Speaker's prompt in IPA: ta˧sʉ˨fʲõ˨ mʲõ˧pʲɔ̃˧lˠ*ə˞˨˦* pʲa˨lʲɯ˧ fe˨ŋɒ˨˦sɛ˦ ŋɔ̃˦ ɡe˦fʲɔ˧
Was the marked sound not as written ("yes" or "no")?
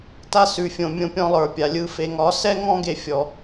yes